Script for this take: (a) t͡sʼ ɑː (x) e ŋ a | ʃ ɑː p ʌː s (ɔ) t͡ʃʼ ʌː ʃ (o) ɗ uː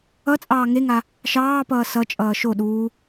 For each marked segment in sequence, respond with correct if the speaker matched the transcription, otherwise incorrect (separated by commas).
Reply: incorrect, incorrect, incorrect, correct